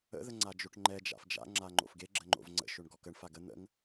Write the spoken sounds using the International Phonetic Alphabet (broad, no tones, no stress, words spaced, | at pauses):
ə̰ ðəŋ͡ǀad͡ʒoʈŋ͡ǃɛ d͡ʒa̰fd͡ʒa̰ ŋ͡ǁaŋ͡ǃo̰fɡe ɡ͡ǁəŋ͡ǃo̰vŋ͡ǀə̰ ʃoɳɡɔkəɳ faɡə n̪ə̰ŋ